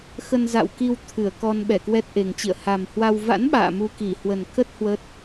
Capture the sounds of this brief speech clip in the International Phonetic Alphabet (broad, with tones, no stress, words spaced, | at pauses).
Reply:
xə˧nza̰˧˨wki˧w t̪ʰɨ˧˩ə̯kɔ˧n ɓɛ˧˩kwɛ˦˥t̚ʔe˨˩ŋt͡ɕḭ˧˨ə̯ ha˨˩mhwa˧w va̰˧˥n ɓa̰ː˧˨mu˧ki˧˩ hwə˨˩nkə˦˥t̚ hwə˦˥t̚